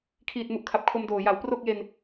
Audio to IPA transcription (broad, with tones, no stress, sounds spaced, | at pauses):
kʰ iː˨˩ t̚ m u˨˩ ʔ kʰ a˨˩ p̚ kʰ o˧ m d oː˨˩ j a˩˦ w p r o˥˩ k̚ j e˧ n